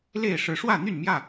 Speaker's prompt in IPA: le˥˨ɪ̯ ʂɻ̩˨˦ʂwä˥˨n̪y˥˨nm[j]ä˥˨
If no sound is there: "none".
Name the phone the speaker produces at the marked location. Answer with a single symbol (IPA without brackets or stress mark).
j